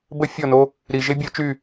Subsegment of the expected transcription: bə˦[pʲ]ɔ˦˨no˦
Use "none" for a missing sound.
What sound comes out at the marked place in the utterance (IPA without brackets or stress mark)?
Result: fʲ